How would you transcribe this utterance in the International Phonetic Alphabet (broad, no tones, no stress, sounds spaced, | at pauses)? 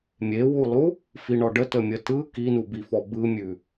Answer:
mʲ e w u lˠ u | f i ɳ ɔ ɖ ə t ə mʲ ə t ɯ k i n u b i f ɔ b ɯ mʲ ʉ